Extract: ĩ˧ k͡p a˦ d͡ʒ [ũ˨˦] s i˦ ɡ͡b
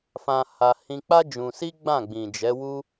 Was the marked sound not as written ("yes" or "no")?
yes